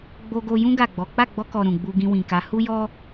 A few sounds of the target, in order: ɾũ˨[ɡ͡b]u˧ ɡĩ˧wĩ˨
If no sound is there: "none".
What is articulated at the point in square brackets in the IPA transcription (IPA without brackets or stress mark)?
ɡ͡b